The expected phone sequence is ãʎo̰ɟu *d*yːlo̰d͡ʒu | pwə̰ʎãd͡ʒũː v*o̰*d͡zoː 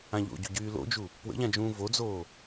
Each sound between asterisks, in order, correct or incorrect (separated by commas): incorrect, incorrect